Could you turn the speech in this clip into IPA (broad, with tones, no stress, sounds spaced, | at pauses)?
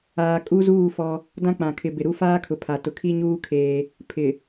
aː˨ kʼ u˦ z uː˦˨ f ɔ˦ | d ã˦ k͡p ã˨ kʰ ɪ˨ b ɪ˨ ɾ u˦ f aː˦ kʰ ʊ˨ pʰ a˨ t ʊ˨ kʰ i˦ ɲ uː˦ kʰ eː˦ | pʰ ɪ˨